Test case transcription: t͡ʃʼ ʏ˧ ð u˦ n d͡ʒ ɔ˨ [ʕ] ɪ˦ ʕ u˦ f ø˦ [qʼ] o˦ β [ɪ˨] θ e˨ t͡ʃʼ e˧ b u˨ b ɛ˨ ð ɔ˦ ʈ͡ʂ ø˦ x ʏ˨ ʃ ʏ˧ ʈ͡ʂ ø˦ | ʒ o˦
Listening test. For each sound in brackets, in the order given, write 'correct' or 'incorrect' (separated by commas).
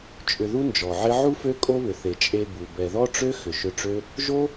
correct, incorrect, incorrect